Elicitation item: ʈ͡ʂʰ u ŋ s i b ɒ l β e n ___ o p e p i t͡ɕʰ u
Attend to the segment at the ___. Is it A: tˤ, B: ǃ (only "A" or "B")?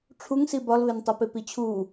A